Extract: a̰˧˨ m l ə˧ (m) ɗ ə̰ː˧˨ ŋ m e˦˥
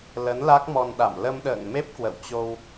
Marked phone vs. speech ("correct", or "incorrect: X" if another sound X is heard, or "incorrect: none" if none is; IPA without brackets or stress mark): correct